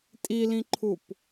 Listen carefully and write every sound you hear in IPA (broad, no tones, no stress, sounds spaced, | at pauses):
tʼ i l ĩ ǃʰ u p